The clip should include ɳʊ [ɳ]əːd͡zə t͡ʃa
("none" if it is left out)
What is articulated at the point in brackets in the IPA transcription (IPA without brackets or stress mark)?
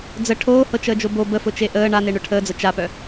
ʈʰ